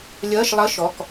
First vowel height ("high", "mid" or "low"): mid